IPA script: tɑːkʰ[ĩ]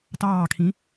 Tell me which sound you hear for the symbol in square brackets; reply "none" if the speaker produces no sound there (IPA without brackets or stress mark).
ĩ